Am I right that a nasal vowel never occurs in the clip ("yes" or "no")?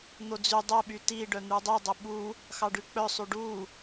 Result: yes